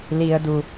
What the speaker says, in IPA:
l i ə̯ d u

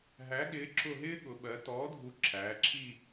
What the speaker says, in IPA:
ɦ æ˨˥ ɠ ɪː˨˥ ǁ ʊ˦˨ ɦ ɪː˥ ɠ ʊ˩˧ ɓ ɜ˩˧ t ɔː˨˥ dʱ u˨˥ ǁʰ æː˩˧ ǁʰ i˦˨

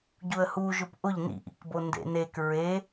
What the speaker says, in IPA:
ɟ u ə̯ h u ʒ ʊ p ʔ ʊ ʎ n ḭ ʔ ḭ k b o n d ḛ n e k ɹ e

